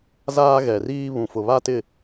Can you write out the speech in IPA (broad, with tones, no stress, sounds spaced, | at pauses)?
z aː˦ ɣ ɛ˨ r iː˦ β ũ˨ f ʊ˨ β a˦ t ɪ˦˨